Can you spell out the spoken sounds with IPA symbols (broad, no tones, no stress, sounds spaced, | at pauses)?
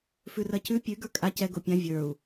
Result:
f ʉ r ɜ c ʉ pʲ ʉ ɡ ə˞ kʼ a c ɛ ɡ o pʲ ã vʲ ə˞ u̯